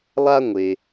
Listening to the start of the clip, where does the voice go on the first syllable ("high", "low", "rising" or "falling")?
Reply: high